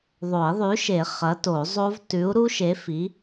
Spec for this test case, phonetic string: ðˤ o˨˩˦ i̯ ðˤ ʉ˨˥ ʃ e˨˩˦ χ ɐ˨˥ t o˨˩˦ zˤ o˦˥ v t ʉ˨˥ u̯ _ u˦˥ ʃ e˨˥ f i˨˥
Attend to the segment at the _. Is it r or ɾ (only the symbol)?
ɾ